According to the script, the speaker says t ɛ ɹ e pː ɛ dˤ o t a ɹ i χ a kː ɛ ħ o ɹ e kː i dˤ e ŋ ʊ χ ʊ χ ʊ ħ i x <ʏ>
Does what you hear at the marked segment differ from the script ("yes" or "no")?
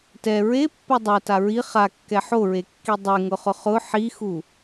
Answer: yes